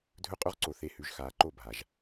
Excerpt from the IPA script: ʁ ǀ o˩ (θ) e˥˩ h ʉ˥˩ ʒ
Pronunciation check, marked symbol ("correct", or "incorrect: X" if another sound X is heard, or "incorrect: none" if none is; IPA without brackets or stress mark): correct